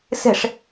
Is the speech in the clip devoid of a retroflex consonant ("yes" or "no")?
no